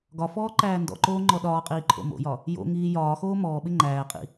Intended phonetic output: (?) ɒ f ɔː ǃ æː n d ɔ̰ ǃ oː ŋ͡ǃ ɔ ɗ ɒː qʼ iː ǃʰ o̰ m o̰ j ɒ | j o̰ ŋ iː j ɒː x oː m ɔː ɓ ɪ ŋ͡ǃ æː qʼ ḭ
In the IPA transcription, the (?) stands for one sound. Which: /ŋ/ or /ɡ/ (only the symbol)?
ɡ